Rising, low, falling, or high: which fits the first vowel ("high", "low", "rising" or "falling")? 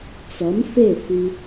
rising